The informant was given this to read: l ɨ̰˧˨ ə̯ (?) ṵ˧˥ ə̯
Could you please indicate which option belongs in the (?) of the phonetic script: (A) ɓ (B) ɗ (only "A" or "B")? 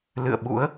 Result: A